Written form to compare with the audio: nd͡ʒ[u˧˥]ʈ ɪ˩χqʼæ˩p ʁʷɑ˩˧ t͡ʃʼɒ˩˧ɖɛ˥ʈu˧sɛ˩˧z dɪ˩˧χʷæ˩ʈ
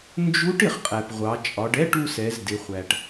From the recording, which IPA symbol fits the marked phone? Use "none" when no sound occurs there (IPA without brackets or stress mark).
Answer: u˧˥